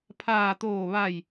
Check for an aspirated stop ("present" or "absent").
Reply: present